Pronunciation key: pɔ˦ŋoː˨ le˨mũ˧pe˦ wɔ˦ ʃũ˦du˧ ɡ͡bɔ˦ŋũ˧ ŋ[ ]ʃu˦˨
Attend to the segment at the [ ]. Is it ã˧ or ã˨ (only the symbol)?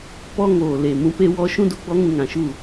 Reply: ã˨